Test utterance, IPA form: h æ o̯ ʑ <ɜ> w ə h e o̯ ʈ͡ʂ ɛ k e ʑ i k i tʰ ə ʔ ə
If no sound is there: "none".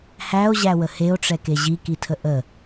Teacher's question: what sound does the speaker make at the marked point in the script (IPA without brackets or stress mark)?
æ